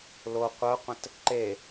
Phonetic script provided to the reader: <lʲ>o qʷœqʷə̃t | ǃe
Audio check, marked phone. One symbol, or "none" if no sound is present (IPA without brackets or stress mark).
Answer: l